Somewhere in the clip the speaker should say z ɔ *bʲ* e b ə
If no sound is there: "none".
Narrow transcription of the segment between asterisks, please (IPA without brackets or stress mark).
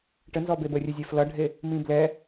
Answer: b